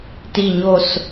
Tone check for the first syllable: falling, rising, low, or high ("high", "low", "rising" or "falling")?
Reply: low